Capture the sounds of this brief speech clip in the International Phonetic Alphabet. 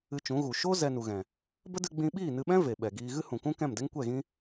ɨ˧ t͡ʃ ũ˨˦ ɣ u˨ ʃ o˦ z ɛ˧ n u˨ ɣ ɛ̃˨ | b ə˦ d ɨ˧ ɡ͡b ĩ˧ ɓ iː˦˨ n ɨ˧ ɓ ɛ̃˦ v e˨ ɓ ɛ˨ ɡ iː˧ ɣ ɨ˦ h ũ˨ k ũ˦ k ɛ̃˦˨ m d ɛ˦ ŋ kʷ ɛ˦˨ ɣ ĩ˦

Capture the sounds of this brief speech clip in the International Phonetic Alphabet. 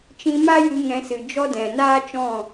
t͡ʃ ĩ˧ m a˦ j ɨ˧ ŋ ɛ̃˧ s ɨ˨ d͡ʒ ɔ˦ d ɛ̃˨ n aː˦ t͡ʃ ɔ̃˦˨

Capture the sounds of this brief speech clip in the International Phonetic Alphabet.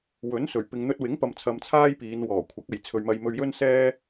w ɵ˨˥ n s ɵ˨˩ ɥ p ɪ˧ ŋ n̪ ɵ˧ t̚ w ɪ˨˥ ŋ p ɐ˨ m t͡sʰ ɐ˧ m t͡sʰ aː˥ j p iː˨˧ n w ɔː˨˩ kʷʰ ɐ˨˥ k̚ ɐ˨ j t͡sʰ ɵ˨ ɥ m ɐ˧ j m ɵ˧ ɥ j ɵ˥ n s ɛː˥

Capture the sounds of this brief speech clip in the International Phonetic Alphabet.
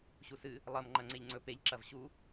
ɕ u s ɨ | lˠ ɐ m ŋ͡ǃ ɐ ŋ͡ǀ e ʎ ŋ͡ǀ ɵ p e ʎ ǁ ɐ v ɕ u

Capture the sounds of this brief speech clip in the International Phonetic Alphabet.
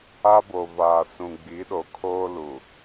a˦ b o˨ v aː˨ s ũ˨ ɡ͡b i˨˦ ɗ o˨ kʰ oː˦ l u˨

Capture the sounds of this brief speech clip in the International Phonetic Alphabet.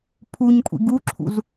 pʰ u ɲ kʷʼ ḭ ɡ u ǁʰ ṵ z

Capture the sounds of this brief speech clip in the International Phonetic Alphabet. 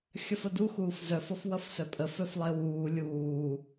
xʲ ʌ f ə d u x uː f z œ f ɔ f w ʌ f s œ pʼ ə f œ f lˠ ɪː w uː lʲ uː

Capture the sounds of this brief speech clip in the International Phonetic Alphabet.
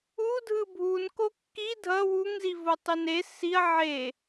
u dʱ ɯ bʱ u n k o kː i dʱ ʌ w u ŋ z i v o tˤ i n e s i ɐ̯ ʕ e

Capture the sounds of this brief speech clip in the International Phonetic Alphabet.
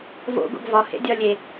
v o̰ ɡ o̰ ɡ v ɒ h ḛ dʲ ɒ lʲ e

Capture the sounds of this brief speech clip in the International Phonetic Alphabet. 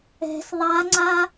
ɛ̤ s ðˤ a ŋ͡ǀ a

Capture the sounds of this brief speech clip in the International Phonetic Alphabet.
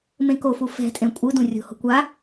m ẽ k o f u f ɛ̤ tʼ ẽ kʷʼ ɯ d ũ rʲ o̤ h o̤ kʷ a

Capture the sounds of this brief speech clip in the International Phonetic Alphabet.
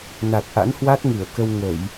n a˨˩ t̚ ʔ a̰˧˥ n h w a˦˥ t̚ ŋ ɨ˧˩ ə̯ k ə˧ w ŋ ə˧˩˨ j

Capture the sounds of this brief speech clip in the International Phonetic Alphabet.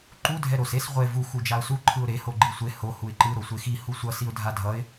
ǃ u dʱ ɛ ɾ o s e s ʁʷ e v u x u d͡ʒ a ʊ̯ s u ǃʰ ɯ ʊ̯ ɾ e h o ɡ͡ǃ i sʷ e h o h u ɪ̯ ǃ ɯ ɾ o sʷ e x i h u sʷ ʌ s i ʊ̯ dʱ a dʱ ʌ ɪ̯

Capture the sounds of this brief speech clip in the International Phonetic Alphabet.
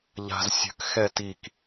ʎ a̤ z sʲ ə̤ k x ɛ t i k

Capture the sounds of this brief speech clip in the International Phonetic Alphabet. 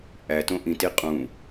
ʔ æ t õ ʔ ĩ t i qʼ ũ

